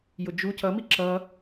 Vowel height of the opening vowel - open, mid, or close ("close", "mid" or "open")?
close